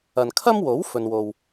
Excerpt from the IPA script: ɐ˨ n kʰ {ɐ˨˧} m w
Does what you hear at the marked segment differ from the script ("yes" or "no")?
yes